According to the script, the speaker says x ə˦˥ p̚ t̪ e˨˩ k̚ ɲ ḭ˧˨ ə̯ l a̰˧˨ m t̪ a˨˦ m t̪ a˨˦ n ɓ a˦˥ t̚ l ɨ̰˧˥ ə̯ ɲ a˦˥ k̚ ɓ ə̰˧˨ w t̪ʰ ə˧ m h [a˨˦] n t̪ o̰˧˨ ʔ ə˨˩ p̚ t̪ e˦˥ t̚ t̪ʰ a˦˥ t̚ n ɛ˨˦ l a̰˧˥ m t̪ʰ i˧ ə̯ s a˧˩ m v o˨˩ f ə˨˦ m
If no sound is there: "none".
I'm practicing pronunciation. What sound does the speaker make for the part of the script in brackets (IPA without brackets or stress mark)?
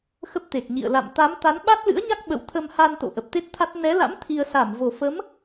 a˧